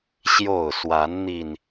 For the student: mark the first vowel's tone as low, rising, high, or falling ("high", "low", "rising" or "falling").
falling